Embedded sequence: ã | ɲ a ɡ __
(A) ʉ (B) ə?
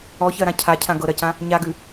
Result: A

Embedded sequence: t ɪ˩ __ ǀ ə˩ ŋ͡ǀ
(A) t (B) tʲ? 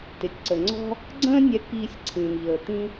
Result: B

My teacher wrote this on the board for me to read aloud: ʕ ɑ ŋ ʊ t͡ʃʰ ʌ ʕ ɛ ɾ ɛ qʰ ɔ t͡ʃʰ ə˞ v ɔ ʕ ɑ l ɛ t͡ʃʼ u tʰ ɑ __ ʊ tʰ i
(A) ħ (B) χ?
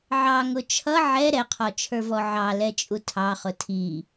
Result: B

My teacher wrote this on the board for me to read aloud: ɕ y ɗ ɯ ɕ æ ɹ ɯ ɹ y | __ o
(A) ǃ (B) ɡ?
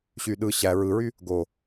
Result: B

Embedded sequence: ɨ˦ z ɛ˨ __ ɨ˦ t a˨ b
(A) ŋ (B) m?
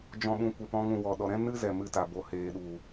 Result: B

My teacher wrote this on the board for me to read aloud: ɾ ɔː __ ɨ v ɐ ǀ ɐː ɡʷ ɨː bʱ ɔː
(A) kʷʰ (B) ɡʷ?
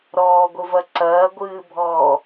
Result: B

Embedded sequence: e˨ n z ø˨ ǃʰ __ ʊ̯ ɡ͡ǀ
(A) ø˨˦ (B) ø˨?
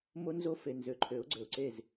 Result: A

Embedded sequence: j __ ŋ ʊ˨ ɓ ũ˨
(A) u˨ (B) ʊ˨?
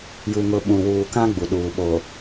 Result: A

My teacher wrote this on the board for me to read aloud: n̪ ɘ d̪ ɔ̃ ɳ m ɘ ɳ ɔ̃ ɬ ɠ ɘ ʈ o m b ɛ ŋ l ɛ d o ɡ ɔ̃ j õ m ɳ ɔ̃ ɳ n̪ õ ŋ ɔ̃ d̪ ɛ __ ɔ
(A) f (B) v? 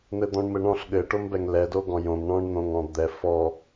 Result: A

